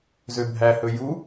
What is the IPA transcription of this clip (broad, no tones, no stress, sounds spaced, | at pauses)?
z ø bʱ æ h ɵ j u